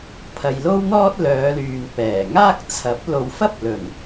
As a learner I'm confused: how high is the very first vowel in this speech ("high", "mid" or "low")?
low